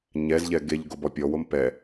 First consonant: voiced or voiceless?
voiced